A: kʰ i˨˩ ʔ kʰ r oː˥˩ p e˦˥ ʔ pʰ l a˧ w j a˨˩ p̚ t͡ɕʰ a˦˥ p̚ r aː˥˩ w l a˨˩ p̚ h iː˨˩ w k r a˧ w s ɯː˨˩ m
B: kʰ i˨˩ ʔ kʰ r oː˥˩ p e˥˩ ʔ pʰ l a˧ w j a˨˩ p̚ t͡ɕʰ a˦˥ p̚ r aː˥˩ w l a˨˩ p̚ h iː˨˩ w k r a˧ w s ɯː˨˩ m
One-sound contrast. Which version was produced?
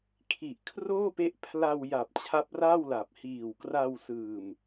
A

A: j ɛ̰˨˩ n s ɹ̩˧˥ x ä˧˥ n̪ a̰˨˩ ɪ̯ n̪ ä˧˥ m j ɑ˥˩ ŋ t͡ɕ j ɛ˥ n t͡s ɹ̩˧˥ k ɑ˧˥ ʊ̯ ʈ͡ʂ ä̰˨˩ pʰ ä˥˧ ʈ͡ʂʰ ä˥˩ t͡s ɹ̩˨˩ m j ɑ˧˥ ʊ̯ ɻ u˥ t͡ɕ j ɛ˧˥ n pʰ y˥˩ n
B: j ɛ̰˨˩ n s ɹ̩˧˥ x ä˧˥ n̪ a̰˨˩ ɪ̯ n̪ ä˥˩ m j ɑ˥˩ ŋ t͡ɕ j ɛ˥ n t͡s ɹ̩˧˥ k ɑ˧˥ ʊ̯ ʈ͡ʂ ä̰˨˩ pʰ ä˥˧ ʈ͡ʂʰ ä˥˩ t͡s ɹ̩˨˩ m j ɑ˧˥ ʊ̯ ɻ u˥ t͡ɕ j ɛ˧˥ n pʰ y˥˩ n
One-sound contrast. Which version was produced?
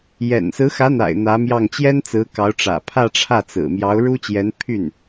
A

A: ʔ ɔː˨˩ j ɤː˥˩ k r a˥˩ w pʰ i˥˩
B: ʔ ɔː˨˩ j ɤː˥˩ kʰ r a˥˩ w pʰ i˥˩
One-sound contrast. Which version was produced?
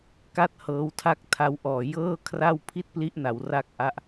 B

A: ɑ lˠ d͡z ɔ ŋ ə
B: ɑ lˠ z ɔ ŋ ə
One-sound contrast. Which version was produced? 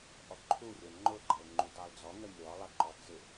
A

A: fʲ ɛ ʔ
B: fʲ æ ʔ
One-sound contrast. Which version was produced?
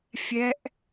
A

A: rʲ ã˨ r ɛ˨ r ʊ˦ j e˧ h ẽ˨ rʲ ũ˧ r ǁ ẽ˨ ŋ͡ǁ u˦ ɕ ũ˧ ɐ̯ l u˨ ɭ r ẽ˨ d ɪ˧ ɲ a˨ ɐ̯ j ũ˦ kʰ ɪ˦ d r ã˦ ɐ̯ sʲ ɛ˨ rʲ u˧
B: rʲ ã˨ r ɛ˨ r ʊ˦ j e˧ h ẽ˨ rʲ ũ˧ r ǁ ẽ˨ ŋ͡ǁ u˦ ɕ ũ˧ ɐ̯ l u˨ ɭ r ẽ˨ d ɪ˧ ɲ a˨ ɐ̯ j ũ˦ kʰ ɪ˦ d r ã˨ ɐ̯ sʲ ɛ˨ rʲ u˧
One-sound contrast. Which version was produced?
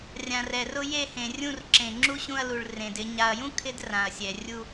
B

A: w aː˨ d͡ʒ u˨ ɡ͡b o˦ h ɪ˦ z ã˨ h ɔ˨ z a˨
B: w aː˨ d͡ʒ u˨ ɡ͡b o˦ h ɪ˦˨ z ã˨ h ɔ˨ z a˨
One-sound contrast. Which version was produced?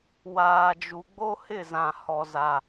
B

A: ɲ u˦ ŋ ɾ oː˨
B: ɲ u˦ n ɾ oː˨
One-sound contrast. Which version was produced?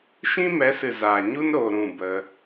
B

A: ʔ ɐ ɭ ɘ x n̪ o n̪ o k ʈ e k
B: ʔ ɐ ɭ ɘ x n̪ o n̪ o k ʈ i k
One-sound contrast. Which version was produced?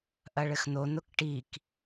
B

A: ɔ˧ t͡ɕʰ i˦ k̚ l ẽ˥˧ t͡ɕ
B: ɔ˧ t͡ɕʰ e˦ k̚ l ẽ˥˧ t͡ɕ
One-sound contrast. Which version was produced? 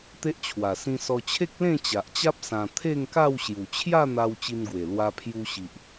B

